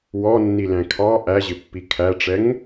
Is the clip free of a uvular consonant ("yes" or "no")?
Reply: yes